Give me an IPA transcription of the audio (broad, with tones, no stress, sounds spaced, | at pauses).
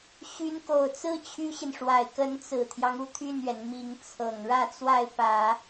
ɕ y˧˥ n k o˨˩ ʊ̯ t͡s ɹ̩˥ t͡ɕʰ y˥ ɕ i˨ n ʂ w a˨˩ ɪ̯ k ə˧˥ n t͡s ɹ̩˨˩ t̪ʰ j ɑ˦ ŋ u˥˧ t̪ʰ y˥˩ n ɥ ɛ˩ n m i˧˥ ŋ t͡sʰ ɤ˨˩ ŋ ɻ ä˥˧ t͡s w a˥˩ ɪ̯ p ä˨˩˦